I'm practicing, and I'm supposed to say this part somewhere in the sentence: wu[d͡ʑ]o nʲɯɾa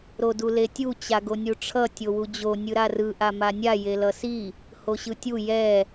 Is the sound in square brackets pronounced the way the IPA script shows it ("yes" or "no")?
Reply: yes